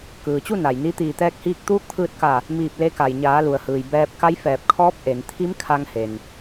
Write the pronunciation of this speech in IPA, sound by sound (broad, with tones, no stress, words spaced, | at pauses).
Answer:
kɯː˩t͡ɕu˥˨ na˩jni˧˥ t̪iː˩t̪ɛː˧k̚hiː˧k̚ t̪uː˧˥k̚t̪ʰɯː˧t̚ka˧˩ | miː˧˩p̚le˧ka˩j ɲaː˩˧lu˩ə̯hɯː˩j bɛː˧p̚ka˧˥j fɛː˧˩p̚kʰɔː˧˥p̚ ʔe˩˧n t̪ʰi˧˥mkʰa˧ŋhe˩n